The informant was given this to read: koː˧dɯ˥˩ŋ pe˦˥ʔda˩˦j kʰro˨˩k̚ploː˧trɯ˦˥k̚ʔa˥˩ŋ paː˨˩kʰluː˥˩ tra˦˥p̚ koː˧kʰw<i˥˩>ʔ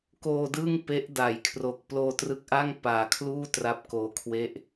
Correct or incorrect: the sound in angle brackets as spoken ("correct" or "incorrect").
incorrect